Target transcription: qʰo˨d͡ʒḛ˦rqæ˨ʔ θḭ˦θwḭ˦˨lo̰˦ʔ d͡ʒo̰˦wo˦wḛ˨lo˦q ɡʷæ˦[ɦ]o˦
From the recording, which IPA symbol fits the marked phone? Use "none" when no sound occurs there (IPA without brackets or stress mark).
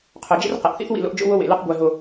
ɦ